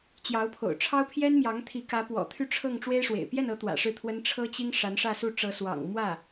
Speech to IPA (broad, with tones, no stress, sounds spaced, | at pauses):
t͡ɕ j ɑ˧˥ ʊ̯ pʰ o̰˨˩ ʊ̯ ʈ͡ʂʰ ɑ˥ ʊ̯ pʰ j ɛ˥ n m j ɑ˧˥ ŋ t̪ʰ i˧˥ k ä˧˥ p w ɔ̰˨˩ t̪ʰ y˥˧ ʈ͡ʂʰ ɤ˥˩ ŋ ʈ͡ʂ w e˥ ɪ̯ ʂ w ḛ˨˩ ɪ̯ p j ɛ˥˩ n ɤ˧˥ t̪ w ä̰˨˩ ʂ ɻ̩˥˩ t̪ʰ w ə˥ n ʈ͡ʂʰ ɤ˥ t͡ɕ i˥ ŋ ʂ a˧˥ n ʂ ä˥˧ s u˥˩ ʈ͡ʂ ɤ˧˥ s w ɑ̰˨˩ ŋ m w ä˥˩